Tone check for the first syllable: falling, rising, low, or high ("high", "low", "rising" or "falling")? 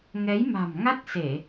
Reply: rising